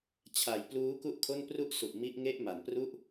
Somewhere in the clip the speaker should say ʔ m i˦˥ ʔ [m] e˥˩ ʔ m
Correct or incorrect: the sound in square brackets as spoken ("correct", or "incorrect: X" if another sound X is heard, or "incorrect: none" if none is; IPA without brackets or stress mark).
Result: incorrect: ŋ